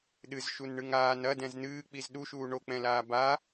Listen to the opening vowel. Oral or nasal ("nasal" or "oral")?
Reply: oral